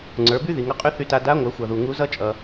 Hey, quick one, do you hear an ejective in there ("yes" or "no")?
yes